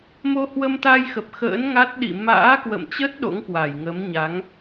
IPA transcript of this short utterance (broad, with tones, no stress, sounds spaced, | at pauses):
m o˧ h w ə˧ m t̪ aː˧ j x ə˨˩ p̚ x ə̰ː˧˥ n ŋ a˦˥ t̚ ɗ ḭ˧˨ m a̰ː˧˥ k w ə̰˧˨ m t͡ɕ ə˦˥ t̚ ɗ o̰˧˥ ŋ k w a˧˩ j ŋ ə˨˦ m ɲ a˨˦ ŋ